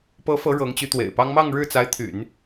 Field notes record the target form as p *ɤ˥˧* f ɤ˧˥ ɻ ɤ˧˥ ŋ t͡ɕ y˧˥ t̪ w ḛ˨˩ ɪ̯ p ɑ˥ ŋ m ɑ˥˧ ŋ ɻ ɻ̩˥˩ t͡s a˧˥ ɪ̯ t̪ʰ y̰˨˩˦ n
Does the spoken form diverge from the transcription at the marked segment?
yes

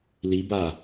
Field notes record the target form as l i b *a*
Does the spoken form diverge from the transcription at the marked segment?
no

